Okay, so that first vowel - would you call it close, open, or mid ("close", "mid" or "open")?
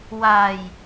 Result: open